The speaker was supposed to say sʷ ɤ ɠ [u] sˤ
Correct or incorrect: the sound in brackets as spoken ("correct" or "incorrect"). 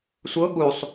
correct